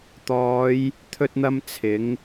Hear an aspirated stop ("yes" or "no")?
yes